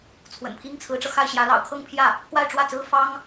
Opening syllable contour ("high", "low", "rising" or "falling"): low